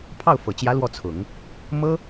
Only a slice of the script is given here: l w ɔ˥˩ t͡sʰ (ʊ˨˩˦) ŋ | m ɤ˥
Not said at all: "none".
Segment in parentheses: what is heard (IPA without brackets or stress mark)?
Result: ʊ˨˩˦